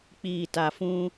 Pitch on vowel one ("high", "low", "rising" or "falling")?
low